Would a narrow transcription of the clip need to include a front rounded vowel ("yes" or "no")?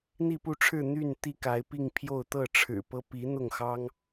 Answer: yes